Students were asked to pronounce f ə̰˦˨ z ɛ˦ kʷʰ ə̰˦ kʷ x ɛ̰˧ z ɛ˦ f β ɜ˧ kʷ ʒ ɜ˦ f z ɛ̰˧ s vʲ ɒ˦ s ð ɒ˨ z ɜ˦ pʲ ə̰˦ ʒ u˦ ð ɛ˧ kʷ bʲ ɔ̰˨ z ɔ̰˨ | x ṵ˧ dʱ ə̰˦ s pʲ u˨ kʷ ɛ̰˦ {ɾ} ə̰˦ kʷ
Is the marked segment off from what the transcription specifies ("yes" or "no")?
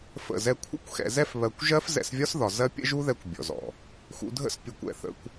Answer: yes